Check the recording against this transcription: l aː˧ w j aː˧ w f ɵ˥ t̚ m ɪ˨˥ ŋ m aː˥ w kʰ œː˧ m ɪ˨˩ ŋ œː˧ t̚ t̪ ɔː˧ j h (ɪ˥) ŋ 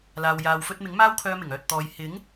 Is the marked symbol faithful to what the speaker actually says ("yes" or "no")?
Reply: no